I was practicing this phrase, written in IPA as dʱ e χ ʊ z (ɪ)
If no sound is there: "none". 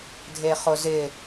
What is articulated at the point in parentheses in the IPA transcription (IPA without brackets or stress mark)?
ɪ